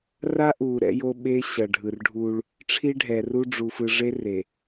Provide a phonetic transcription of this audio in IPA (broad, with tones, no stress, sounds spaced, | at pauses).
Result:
r a˦ ʔ uː˨ ɾ ɛ̰˦ j o˦ ɓ e˦ ɕ ʌ˨ ɖʱ ɯ˨ r ɖʱ u˦ ɭ | ʈ͡ʂʰ i˦ ɖʱ ɛ˨ r u˦ ɖ͡ʐ u˨ f ɯ˨ ʐ e˦ r e˨